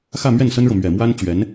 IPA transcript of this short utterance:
xä˥˧mɥɛ˥˩nsə˥nɻɤ˨ mɥɛ˨˩mwa˥nt͡ɕɥɛ˧˥n

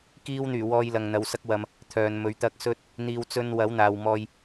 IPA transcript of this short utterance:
kiː˧wn̪yː˨˩wɔː˨j lɐ˨ŋn̪ɐ˨˧wsɐ˥k̚wɐ˧m | t̪ʰœː˨nmɵ˨˥ɥt̪ɐ˥k̚ sɵ˥t̚ | n̪iː˨˧wt͡sɵ˧n wɐ˨˥wn̪aː˨w mɔː˧j

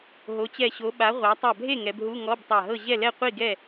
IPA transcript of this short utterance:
ɦo˨˦t͡ɕɛ˧˩ɕo˨˦ ɓa˨˦ʁʷa˨˦ tˤa˧˩bʱe˥˨ ŋɛ˨˦bɦu˧˥˧ ŋɔ˧˥˧b tˤa˧˩ɦɤ˥˨ ʑɛ˥˨lɛ˥˨qʷi˥˨ɡɛ˥˨

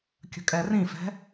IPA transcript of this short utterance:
kʲə̤kʼɛrĩfɛ̤

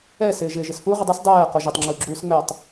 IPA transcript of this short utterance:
ɛ sɪːʒɪːʒɪsfu ʁɪdˤɪs dˤɛː qoʒɪtˤ ŋ͡ǁuɡ͡ǁuːsŋ͡mɛtˤ

